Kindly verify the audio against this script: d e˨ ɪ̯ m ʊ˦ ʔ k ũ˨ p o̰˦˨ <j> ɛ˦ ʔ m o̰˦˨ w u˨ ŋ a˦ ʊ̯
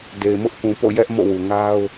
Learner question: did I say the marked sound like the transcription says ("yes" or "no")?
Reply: yes